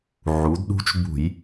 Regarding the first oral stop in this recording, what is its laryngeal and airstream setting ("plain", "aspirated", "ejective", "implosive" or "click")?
plain